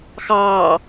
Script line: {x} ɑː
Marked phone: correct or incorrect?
correct